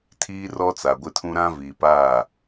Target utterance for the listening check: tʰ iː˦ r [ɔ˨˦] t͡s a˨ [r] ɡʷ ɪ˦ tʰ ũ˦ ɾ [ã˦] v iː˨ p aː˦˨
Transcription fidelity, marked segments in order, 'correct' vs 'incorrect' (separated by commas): incorrect, incorrect, correct